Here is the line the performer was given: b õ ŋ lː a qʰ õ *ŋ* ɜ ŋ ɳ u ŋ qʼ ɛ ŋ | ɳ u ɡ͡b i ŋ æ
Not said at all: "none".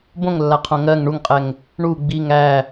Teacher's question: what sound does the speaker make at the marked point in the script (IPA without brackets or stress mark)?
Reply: ŋ